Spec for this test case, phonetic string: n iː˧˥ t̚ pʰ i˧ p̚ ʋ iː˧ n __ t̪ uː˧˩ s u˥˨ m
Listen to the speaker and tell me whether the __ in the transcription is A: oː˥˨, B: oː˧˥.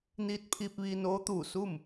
B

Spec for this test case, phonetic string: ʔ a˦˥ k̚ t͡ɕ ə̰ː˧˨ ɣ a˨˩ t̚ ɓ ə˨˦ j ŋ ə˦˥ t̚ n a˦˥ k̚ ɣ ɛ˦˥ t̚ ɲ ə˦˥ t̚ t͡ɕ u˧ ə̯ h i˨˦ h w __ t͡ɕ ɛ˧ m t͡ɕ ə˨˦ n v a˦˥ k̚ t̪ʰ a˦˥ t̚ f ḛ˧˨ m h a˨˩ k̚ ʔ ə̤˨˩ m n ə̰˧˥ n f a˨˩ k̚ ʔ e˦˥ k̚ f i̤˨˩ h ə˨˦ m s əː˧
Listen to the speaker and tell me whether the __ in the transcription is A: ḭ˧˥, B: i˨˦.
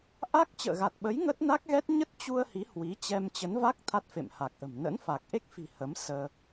B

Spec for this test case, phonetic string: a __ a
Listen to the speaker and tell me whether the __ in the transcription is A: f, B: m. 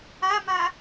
B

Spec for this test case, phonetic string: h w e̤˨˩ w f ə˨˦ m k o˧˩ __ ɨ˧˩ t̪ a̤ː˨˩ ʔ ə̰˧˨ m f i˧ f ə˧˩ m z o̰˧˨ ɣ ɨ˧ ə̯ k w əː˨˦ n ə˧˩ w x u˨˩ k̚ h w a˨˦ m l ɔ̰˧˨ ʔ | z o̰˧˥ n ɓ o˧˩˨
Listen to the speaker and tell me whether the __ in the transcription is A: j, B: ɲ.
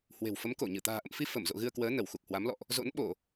B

